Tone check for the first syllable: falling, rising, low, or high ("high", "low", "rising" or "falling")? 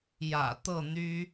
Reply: low